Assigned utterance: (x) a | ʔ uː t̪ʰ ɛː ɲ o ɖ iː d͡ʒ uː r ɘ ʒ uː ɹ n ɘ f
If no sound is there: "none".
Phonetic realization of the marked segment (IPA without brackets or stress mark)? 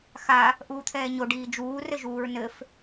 x